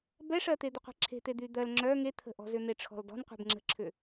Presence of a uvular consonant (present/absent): present